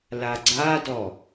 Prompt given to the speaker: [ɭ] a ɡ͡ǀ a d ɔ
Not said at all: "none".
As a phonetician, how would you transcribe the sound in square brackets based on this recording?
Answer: l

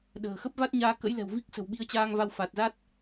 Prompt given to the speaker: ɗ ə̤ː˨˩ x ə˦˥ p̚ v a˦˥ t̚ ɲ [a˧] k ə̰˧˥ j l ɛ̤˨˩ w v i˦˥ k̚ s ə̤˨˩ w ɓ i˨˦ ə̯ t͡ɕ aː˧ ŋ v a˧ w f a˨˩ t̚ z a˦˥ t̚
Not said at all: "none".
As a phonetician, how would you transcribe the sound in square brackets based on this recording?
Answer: aː˧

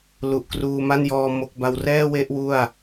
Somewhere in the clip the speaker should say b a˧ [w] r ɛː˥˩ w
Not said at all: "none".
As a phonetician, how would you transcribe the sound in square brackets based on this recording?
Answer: w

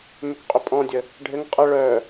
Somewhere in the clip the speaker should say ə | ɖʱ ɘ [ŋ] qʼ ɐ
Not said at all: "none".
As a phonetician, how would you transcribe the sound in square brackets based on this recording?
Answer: ŋ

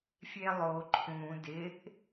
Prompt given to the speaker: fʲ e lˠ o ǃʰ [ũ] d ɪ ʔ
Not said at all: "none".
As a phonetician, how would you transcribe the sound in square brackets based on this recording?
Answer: ũ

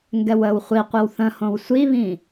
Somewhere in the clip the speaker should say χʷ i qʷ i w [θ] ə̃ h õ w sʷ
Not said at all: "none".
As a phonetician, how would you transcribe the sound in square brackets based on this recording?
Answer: θ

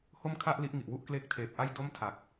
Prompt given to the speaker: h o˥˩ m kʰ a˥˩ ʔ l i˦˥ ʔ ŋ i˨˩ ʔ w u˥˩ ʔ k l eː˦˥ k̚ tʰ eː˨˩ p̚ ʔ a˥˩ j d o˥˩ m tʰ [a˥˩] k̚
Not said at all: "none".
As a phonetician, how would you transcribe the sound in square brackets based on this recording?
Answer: a˨˩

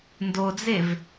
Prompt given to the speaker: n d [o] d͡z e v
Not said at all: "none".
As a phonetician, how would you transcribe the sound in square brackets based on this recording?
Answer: o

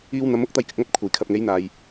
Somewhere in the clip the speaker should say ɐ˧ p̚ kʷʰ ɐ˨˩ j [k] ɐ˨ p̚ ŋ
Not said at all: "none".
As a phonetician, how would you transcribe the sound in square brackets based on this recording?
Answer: kʰ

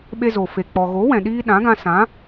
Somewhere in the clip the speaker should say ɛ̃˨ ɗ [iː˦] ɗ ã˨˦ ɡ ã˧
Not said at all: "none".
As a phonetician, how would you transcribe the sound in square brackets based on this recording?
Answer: iː˦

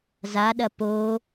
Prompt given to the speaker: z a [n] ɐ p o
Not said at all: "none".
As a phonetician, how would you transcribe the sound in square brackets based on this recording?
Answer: ɗ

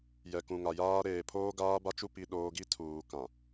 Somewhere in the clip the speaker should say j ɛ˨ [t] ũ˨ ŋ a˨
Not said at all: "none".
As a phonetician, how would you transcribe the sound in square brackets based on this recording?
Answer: k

